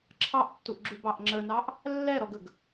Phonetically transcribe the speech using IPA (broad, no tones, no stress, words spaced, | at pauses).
ǁʰɑʔtːuʔɡ͡ǁubɑʔ ŋ͡ǁənɑʔ | lːɛɾɔɡəɡ